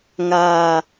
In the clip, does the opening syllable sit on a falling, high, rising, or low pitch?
low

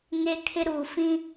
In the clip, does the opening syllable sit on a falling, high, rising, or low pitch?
high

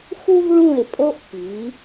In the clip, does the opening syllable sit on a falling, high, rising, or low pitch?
high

